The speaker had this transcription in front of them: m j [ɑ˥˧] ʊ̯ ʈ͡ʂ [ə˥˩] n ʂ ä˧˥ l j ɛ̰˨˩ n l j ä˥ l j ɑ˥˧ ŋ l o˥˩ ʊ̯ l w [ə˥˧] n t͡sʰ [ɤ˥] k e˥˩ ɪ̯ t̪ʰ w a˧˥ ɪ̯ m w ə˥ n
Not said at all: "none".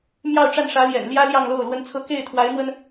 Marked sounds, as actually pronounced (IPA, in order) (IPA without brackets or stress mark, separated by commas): ɑ˥˧, a˥˩, ə˥, ɤ˥˧